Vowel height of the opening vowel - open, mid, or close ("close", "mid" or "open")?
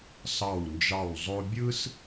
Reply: open